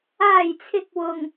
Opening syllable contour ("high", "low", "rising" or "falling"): low